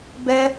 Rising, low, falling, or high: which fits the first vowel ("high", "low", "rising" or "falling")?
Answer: high